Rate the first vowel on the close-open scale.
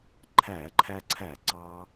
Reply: open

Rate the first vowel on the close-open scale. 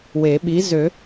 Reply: mid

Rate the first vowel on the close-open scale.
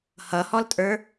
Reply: mid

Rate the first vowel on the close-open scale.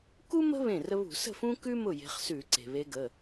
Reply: close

